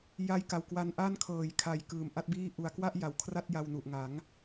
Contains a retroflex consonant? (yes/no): no